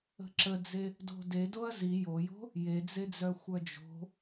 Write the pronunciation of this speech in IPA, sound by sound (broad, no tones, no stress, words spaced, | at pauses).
ə̤ǁəd͡ze | do̤dedoɐ̯ zi jojo̤ | jed͡zed͡zœ xʷœd͡ʒo̤